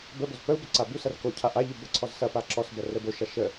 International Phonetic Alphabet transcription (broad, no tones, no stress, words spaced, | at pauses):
bəboz pəu̯bə ǀabusɐr kocʰa ʔaʎʉ bəǀʰɔz sɐpa ǁɔsbɐ rəboʃa ʃə